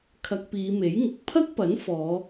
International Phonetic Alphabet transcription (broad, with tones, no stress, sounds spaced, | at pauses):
kʰ ɐ˧ k̚ p iː˨˧ m e˨˥ j ŋ ʊ˨˥ k̚ pʰ ɐ˥ k̚ p ɐ˨˥ n f ɔː˨˧